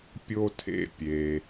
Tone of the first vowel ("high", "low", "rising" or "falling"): high